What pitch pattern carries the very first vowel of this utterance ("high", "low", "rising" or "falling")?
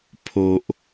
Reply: low